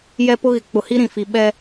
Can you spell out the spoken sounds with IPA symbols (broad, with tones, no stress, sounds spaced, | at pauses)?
j ɛ˦ p ʊ˦ ɣ ɪ˨˦ k͡p ʊ˨ h i˦ ɾ ĩ˨ f i˨ ɓ ɛ˦